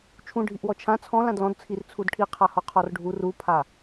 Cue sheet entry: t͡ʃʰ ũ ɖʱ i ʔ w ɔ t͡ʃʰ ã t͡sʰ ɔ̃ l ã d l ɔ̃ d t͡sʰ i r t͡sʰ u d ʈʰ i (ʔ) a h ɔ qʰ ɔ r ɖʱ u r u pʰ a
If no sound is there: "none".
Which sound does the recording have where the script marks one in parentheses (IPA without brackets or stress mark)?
qʰ